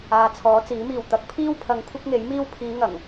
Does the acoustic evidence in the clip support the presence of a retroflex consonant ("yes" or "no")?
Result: no